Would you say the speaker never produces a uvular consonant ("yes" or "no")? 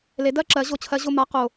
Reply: no